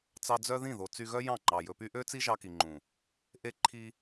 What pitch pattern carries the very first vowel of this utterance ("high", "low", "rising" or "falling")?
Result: low